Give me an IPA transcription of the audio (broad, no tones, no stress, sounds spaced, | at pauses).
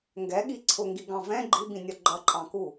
ŋ ɡ ɛ ɠ i ǀʰ ʊ ŋ ɡ i ɡ ɑ̃ v ɛ̃ ɡ͡ǃ i b ĩ nʲ ʌ ɡ͡ǃ ʌ ǃʼ ɑ̃ k u